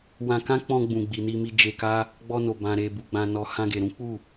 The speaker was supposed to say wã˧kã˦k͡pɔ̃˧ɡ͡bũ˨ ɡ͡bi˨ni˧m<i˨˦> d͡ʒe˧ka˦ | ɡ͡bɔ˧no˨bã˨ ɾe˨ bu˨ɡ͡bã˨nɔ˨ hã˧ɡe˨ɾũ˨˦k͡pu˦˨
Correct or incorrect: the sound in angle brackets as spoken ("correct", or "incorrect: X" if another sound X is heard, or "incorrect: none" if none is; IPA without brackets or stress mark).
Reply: incorrect: i˧